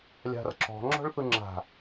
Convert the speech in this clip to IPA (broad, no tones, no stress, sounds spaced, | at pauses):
lʲ a̤ r ǁ ɔ̤ ŋ͡ǁ ɔ̤ ɭ θ ɯ ŋ͡ǁ a̤